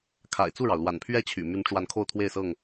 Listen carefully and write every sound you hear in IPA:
kʰa̰˨˩ɪ̯t͡su˥˨ɻɑ˩ʊ̯ lwa̰˨˩npʰɥɛ˦t͡ɕʰy̰˨˩ my˨˦nʈ͡ʂwa˨˦n kʰo˥˨ʊ̯t̪ʰwe˥˨ɪ̯sɤ˥˨ŋ

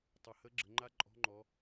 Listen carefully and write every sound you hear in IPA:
tˤɨ˩ hə˧˥ɡ͡ǁə˩˧ ŋ͡ǃa˥ǃʼɔ̤˧˥ ŋ͡ǃɔ˩˧

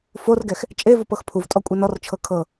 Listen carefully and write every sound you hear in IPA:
forɡɛx | t͡ʃʼevop ɤxpʰuvtʼɔ kʷʼenɔrt͡ʃʰɤ kʰɤ

